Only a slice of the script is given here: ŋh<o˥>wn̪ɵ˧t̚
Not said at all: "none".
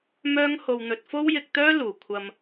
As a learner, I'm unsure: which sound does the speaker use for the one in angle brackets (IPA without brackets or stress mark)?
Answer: o˧